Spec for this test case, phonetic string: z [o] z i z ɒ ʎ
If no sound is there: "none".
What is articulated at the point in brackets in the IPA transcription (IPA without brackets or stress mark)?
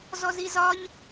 ɔ